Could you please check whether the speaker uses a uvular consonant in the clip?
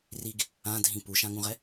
yes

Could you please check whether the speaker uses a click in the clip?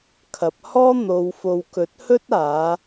no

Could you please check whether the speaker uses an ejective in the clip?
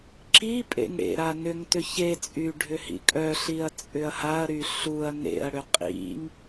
yes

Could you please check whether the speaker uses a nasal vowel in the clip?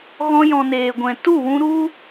yes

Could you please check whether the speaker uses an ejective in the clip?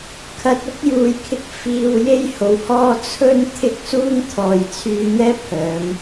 no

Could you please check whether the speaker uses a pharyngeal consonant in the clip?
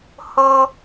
no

